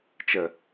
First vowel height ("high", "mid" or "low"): mid